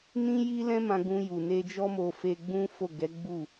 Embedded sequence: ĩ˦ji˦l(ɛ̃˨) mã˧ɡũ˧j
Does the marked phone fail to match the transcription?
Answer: yes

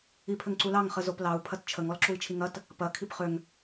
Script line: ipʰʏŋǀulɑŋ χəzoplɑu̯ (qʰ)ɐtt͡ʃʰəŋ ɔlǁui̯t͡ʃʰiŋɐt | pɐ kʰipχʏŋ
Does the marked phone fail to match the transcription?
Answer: yes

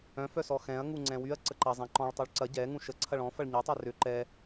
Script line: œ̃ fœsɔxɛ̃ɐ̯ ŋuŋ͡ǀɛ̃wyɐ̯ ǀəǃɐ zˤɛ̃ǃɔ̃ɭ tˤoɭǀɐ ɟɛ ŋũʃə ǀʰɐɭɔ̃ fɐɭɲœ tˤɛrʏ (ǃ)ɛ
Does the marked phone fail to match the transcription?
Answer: no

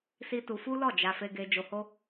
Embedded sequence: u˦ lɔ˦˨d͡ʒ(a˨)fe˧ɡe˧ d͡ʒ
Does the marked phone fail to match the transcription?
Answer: yes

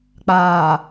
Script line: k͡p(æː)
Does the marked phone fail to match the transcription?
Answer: yes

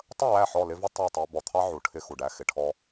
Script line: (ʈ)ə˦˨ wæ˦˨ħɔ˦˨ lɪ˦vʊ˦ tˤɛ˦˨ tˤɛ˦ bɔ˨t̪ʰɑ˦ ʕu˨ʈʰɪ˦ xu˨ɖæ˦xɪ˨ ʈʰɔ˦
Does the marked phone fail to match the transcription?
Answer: yes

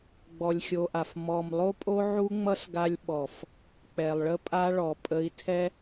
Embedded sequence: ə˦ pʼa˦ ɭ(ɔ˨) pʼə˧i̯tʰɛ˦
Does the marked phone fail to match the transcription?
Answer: no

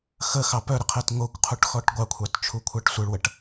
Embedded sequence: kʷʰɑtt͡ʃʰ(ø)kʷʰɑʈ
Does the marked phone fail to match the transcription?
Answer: yes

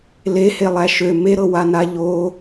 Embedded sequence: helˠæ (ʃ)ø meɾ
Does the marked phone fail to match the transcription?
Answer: no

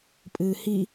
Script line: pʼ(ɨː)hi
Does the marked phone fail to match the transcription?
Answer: no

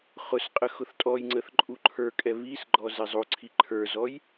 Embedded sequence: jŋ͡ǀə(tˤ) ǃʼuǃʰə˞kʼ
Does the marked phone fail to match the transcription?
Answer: yes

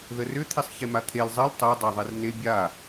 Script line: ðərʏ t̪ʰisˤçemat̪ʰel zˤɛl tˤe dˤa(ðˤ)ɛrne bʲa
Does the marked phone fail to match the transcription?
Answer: no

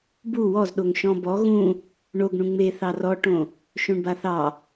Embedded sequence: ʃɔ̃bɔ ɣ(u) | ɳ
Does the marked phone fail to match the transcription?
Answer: yes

